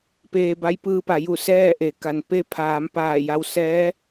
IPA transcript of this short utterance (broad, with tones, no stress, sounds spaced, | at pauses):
p eː˧ b a˧˥ j p ɯː˧ p a˩˧ j u˧˩ s ɛː˥˨ ʔ e˩ k a˩ n p e˧ pʰ aː˩˧ m p aː˧˩ j a˧ w s ɛː˧˥